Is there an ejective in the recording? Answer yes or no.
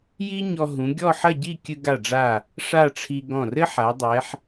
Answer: no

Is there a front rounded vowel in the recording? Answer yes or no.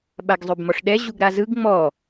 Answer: yes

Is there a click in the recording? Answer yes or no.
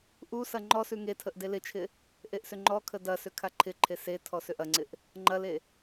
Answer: yes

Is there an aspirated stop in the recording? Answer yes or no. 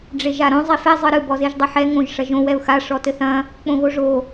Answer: no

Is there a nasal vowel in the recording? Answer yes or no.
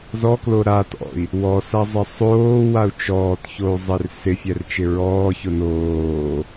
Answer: no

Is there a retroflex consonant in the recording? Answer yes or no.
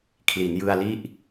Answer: no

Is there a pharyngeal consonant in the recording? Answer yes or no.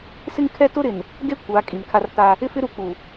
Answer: no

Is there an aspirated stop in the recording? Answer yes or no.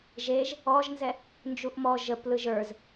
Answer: no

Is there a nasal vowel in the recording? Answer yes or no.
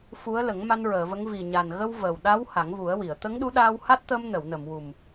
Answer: no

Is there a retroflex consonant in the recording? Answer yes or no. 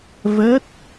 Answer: no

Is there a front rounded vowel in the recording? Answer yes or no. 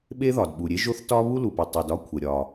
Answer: no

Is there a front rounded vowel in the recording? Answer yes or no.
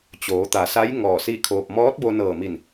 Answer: no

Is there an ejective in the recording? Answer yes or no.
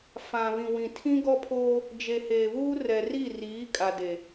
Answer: yes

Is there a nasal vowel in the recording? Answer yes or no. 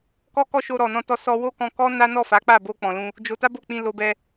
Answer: yes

